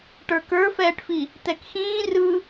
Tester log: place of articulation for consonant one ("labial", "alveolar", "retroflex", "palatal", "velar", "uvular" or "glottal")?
retroflex